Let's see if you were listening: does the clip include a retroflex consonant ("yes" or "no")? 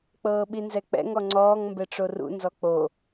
yes